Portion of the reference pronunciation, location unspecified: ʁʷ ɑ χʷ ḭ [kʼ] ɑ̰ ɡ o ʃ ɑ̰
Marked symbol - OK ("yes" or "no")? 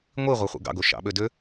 no